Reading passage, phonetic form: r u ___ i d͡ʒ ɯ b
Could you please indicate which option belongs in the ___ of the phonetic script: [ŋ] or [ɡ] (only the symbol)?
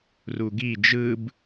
ɡ